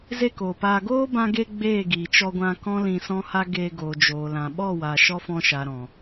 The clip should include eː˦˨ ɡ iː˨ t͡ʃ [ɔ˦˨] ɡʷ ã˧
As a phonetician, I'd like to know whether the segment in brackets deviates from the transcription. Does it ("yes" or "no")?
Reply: yes